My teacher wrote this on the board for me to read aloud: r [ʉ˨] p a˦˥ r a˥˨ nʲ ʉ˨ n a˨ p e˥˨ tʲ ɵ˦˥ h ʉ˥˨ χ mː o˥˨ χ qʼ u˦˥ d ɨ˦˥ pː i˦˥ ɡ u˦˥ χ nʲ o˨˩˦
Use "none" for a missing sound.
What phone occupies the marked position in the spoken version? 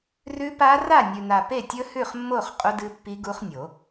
ʉ˦˥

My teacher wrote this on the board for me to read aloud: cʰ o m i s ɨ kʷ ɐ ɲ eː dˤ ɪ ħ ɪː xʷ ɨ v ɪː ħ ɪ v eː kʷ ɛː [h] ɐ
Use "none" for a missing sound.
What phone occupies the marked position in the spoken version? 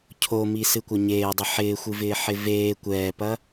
p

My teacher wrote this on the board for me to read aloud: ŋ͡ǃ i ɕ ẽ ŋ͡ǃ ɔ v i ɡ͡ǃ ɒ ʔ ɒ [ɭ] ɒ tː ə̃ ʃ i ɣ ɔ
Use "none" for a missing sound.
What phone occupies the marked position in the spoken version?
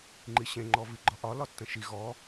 l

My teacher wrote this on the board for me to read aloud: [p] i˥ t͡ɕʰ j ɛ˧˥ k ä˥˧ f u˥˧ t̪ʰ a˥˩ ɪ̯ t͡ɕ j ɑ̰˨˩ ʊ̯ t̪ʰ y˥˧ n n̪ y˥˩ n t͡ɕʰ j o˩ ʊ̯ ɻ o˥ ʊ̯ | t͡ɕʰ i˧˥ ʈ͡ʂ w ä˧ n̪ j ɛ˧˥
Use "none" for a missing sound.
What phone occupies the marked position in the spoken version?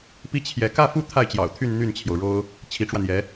p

